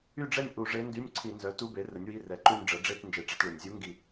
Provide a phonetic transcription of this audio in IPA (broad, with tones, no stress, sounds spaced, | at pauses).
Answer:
y˥˧ ɖ͡ʐ ɛ˥˧ nʲ ʔ u˧˩˧ ʐ e˧˥ n d y˧˥˧ nʲ ǀʰ i˧˩˧ n z œ˩˥ t u˧˥˧ b e˩˥ r ə˩˥ nʲ w i˧˥˧ r ɛ˨˩ ǃ u˥˧ nʲ ɖ͡ʐ ə˩˥ ɖ͡ʐ e˥˧ t n d͡ʒ e˧˩˧ ʈ͡ʂ ɛ˧˥˧ t ɭ ø˨˩ nʲ zʲ u˧˥ ŋ ɡ i˧˩˧